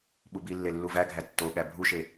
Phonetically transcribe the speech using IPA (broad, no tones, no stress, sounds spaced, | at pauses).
ɓ u b i lː e lː u v æ ɡʱ æ tː o ɠ æ bʱ u ʃ e